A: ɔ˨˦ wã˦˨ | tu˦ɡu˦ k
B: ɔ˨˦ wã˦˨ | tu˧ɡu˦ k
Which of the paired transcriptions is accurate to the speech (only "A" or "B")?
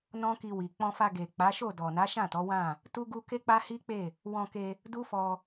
A